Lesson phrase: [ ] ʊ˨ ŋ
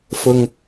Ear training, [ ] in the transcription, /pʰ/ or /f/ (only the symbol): f